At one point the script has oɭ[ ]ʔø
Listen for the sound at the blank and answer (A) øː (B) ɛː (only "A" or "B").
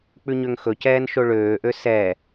A